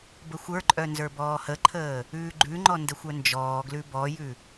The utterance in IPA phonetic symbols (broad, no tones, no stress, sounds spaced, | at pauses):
b ə xʷ ə˞ ǃʼ œ n z ə˞ b ɔː h ə ǃʰ əː | ʉː ɡ͡ǃ ʉ ŋ͡ǃ ɔ n d ə xʷ œ n d͡ʒ ɔː ɡ l ʉ b ɔ j ʉ